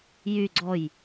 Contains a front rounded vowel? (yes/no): yes